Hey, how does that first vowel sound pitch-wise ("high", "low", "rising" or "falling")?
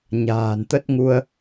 low